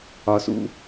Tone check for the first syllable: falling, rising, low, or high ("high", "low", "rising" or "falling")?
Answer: low